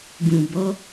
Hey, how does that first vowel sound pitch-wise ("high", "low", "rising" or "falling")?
low